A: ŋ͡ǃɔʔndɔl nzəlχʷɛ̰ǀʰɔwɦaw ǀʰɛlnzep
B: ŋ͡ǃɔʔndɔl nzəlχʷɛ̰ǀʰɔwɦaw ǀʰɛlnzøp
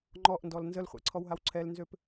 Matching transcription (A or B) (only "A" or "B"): B